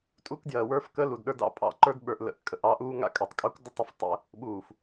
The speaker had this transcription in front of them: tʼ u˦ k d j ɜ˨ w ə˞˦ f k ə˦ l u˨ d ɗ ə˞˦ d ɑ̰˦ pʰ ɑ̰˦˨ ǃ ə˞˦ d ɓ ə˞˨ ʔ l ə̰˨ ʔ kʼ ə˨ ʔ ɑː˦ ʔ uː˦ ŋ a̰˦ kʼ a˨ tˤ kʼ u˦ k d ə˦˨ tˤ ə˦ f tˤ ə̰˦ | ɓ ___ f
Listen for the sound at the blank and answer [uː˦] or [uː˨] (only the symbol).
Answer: uː˨